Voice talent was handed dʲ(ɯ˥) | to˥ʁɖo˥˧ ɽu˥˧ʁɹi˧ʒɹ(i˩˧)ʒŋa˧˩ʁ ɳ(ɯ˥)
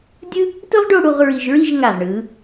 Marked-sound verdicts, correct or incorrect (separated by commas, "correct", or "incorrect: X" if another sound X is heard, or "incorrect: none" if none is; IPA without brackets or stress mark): correct, incorrect: i˥˧, incorrect: ɯ˩˧